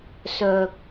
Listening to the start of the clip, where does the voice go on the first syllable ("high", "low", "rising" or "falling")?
low